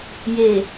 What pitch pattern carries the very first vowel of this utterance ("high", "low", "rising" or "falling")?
low